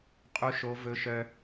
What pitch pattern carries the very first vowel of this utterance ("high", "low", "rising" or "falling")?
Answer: high